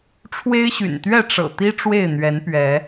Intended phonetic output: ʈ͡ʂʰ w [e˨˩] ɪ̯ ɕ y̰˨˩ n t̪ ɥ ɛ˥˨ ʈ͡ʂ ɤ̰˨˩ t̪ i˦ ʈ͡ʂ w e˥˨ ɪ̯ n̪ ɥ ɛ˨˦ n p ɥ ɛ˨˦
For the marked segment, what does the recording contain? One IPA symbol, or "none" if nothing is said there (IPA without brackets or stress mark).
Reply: e˦